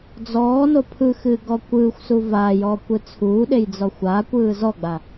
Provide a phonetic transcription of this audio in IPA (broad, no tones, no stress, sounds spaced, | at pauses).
d͡z ɔː n o pʰ ɯ x ɨː ɡ ɔ kʷ ɯː xʷ s u v aː j ɔː kʷ ɯ t͡sʰ uː ɗ e j d͡z ɔ xʷ aː kʷ ɯː z ɔ ɡ͡b a